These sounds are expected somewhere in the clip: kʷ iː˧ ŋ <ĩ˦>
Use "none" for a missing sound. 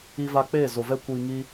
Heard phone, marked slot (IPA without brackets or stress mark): i˦